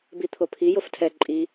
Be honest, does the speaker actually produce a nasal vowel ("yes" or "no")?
no